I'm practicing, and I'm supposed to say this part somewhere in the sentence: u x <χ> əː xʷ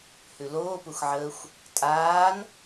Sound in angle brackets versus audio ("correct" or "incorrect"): incorrect